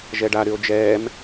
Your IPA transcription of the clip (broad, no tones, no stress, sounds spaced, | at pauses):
ʒ ɛ ɖ a ɾ y o̯ d͡ʒ ɛː m